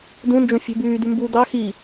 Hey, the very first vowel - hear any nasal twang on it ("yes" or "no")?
yes